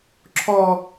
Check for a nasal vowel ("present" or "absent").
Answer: absent